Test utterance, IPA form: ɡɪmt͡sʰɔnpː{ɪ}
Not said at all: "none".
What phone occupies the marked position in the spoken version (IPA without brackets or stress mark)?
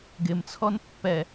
ɛ